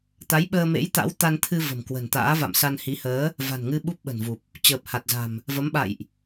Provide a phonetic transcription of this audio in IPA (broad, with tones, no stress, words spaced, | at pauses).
t̪a˨˦j ɓəː˧mḛ˧˥j t̪a̰˧˥wt̪a˧nt̪ʰɨ˧ və̤˨˩m kwə̤˨˩nt̪a̰ː˧˥ va̰˧˨msa˧nhi˨˦həː˨˦ | va̤˨˩nŋɨ˧ ɓu˦˥p̚ɓə̤˨˩nvu˨˩p̚ | t͡ɕəː˨˩p̚ ha˨˩t̚za̤˨˩m | və˨˦mɓa̰˧˨jʔ